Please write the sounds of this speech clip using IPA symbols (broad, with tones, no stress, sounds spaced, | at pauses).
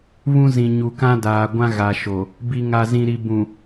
β ũ˦ z ĩ˨ ɲ u˨ k ã˦ d aː˨ ɡʷ ã˦ ɣ a˨ ʃ o˨ | b i˨ ŋ a˨ z ĩ˨ ɾ i˨ b ũ˨